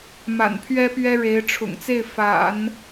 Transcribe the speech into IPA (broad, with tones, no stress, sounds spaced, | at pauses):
m a̰˨˩ n pʰ ɥ ɛ˥ p ɥ ɛ˥ ɻ e˧˥ ɪ̯ ʈ͡ʂʰ ʊ̰˨˩ ŋ t͡s e˥˩ ɪ̯ f a̰˨˩˦ n